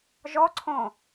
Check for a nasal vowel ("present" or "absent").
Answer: present